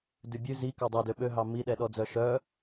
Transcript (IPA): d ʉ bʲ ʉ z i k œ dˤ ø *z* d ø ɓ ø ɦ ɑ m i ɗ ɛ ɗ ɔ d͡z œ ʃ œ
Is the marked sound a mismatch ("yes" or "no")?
yes